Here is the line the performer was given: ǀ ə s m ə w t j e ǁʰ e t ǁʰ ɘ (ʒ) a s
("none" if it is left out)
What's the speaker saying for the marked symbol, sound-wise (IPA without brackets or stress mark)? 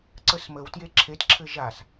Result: ʒ